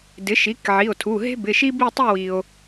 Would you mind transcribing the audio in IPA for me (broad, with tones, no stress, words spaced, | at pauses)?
dɪ˩˥ʃi˩˥kʕi˩˧˩o̯tʰu˩˧˩ ɦe̤˥bɪ˩˧˩ʃi˥ bi˥˧tˤi˥˧wi˩o̯